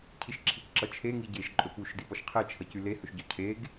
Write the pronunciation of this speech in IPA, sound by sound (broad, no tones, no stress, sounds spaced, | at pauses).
cʰ i ʃ ǁʰ i c ǁ ʌ t͡ʃʰ e ŋ i ɟ e ʃ ǃʼ ɵ p u ʃ d i p ɔ ʃ qʰ e t͡ʃʰ ʌ c y l e h ɵ ʃ ɟ ɔ cʰ e ɡ